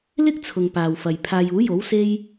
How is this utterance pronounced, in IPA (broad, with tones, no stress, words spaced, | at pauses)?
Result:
lɪ˥k̚t͡sʰʊ˨ŋ paː˨wfɐ˨j pʰaː˨j uː˨˥jo˨˥w se˥j